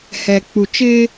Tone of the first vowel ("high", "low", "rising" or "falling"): low